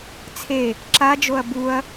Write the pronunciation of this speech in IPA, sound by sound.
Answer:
t͡sʰe | ǁad͡ʒoɐ̯ buɐ̯

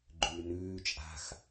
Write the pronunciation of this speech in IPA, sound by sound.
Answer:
ɡ͡ǃʉːnʉː t͡ʃʼa̤x

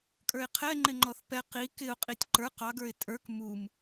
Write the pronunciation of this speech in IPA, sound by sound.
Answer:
kʼə˞ɪ̯qʰɛ ŋ͡ǃɪŋ͡ǃɔθpɛ qi kɪʊ̯qʼitʲ ǃə˞q ɑɡə˞ɪ̯ tʼə˞k mum

